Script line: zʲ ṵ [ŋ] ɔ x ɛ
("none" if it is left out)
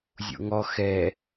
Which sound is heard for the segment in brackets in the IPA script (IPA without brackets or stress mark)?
ŋ